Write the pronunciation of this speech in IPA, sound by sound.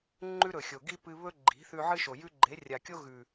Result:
ŋ͡ǃ ʉ˦ ɾ ɵ˨ xʲ o˨ ɡ i˦ p ɨ˧ β ɵ˦ ɡ͡ǃ i̤˨˦ θ ʉ˧ ʕ ɨ˦ ʃ o˨ j ʉ˦ ɡ͡ǃ e˨˦ rʲ a˨ kʲ o˦ ɣ ʉ˨

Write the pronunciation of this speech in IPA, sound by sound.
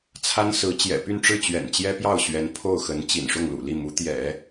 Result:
t͡sʰ a˥ n s ɹ̩˧˥ t͡ɕ j ɛ̰˨˩ p y˥˧ n ʈ͡ʂ ɻ̩˥˩ t͡ɕ ɥ ɛ̰˨˩ n t͡ɕ j ɛ˥ p j ɑ˥˩ ʊ̯ ɕ ɥ ɛ˧˥ n pʰ o˥˩ ʊ̯ x ə˧˥ n t͡ɕ ḭ˨˩ n ʂ ʊ˥˩ ŋ l ṵ˨˩ l i˥˩ m u˧˥ t̪ j ɛ̰˨˩˦

